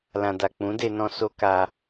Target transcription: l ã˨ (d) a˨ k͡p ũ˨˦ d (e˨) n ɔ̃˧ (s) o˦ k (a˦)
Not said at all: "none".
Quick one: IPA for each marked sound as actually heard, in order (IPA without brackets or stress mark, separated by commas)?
d, e˧, s, a˧